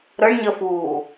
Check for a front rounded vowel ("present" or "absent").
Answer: absent